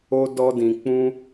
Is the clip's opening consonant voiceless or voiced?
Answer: voiced